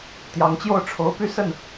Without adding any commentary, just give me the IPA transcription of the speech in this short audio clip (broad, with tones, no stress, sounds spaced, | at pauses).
t̪ j ɑ˧˥ ŋ t͡ɕ j o˥˩ ʊ̯ ʈ͡ʂʰ o˧˥ ʊ̯ p y˥ s ə˥˩ n